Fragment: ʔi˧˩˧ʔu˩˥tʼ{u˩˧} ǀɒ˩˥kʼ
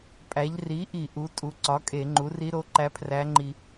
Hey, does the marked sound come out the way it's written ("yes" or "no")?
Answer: yes